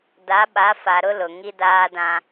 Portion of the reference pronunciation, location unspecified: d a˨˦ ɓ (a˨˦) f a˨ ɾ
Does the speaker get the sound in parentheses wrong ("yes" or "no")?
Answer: no